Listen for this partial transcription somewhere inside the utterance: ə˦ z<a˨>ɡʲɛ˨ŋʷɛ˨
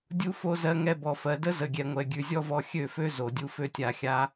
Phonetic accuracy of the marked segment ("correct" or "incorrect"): incorrect